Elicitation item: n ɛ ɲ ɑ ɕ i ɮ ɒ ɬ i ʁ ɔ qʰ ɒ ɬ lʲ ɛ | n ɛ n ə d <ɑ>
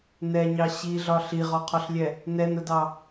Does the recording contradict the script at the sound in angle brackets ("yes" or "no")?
no